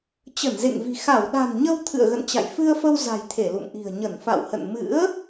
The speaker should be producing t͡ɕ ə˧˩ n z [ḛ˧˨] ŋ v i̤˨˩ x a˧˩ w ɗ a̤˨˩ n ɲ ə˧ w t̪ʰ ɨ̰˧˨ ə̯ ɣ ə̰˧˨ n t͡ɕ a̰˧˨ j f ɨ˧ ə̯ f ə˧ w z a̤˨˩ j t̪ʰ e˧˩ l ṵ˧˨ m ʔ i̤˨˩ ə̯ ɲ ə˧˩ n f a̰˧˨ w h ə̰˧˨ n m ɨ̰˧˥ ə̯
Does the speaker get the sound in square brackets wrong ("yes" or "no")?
no